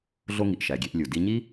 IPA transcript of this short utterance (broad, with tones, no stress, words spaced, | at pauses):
ɮo˥ŋi˩ʔ ʃæ˩ɡʲe˧ʔ lʲu˩ di˧ɲi˥